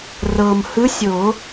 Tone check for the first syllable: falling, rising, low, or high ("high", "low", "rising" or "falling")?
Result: low